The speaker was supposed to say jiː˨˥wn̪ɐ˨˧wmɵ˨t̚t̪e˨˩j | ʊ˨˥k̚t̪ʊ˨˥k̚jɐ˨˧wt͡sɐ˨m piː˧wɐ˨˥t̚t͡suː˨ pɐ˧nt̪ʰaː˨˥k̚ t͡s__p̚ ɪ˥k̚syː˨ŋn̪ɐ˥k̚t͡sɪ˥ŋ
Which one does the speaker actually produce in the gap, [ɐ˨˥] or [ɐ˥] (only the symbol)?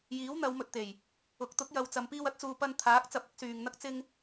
ɐ˨˥